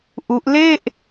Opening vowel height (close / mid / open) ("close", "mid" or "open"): close